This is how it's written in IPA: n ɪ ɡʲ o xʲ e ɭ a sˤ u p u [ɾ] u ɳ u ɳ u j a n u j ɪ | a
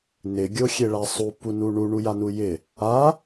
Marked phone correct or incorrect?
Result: incorrect